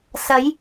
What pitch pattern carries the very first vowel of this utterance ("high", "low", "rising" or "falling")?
rising